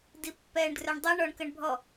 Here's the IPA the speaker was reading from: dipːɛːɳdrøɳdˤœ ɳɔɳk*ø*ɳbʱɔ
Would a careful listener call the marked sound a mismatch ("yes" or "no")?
yes